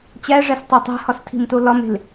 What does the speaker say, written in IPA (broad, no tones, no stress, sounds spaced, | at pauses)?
t͡ɕ æ ʐ æ s tˤ æ tˤ æ̤ h ɒ s tʰ i̤ m t o l ɒ m e̤ l